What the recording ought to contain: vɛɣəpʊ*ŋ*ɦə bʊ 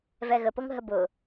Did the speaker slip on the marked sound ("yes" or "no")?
no